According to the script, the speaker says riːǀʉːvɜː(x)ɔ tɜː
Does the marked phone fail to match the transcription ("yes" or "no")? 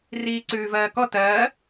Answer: yes